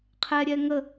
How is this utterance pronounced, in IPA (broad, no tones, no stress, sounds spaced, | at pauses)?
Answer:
qʰ ɛ ɾʲ ɛ ŋ ə